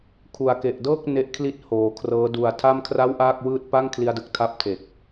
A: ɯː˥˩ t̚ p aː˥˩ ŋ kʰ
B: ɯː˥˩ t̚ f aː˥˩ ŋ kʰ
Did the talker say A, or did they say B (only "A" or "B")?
A